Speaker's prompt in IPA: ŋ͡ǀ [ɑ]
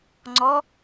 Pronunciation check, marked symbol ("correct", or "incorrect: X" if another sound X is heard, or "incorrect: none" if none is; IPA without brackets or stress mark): incorrect: ɔ